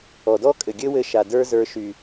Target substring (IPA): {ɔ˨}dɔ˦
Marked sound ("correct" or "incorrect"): correct